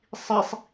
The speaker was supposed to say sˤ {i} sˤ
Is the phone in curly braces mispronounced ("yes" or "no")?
no